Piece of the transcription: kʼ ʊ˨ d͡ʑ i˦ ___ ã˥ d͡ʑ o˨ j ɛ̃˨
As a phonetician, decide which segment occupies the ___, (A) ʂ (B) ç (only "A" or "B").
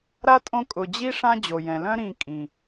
A